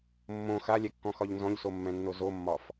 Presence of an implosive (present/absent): absent